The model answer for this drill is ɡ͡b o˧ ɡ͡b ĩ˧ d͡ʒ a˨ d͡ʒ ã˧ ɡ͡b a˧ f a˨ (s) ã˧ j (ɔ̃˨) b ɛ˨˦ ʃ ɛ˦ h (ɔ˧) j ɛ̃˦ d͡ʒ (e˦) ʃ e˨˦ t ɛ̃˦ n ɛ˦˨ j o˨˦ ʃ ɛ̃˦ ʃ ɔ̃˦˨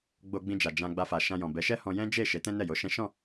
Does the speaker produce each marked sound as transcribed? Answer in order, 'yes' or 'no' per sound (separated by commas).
no, yes, no, no